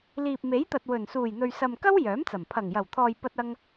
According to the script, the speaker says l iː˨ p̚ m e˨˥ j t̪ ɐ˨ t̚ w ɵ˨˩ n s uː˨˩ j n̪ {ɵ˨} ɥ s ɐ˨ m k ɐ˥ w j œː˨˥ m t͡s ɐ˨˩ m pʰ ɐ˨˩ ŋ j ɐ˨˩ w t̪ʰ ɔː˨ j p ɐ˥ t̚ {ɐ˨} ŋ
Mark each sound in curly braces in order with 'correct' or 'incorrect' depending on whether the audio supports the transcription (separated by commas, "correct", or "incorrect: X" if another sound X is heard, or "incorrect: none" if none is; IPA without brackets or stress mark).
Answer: correct, incorrect: ɐ˥